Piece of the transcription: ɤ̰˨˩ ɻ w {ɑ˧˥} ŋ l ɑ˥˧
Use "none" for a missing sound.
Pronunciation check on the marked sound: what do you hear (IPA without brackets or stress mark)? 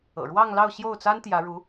ɑ˥˧